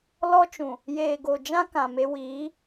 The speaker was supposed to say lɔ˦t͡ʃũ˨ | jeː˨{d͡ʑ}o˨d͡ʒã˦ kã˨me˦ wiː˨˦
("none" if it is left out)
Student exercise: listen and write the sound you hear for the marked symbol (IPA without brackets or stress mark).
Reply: ɡ